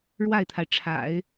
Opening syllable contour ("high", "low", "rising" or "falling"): falling